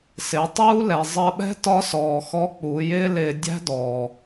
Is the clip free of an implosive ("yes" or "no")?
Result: no